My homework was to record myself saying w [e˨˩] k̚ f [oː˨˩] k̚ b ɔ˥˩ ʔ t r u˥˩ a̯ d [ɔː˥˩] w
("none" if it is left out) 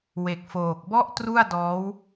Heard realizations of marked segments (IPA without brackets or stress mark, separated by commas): e˨˩, oː˨˩, ɔː˦˥